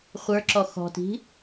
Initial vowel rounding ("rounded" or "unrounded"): unrounded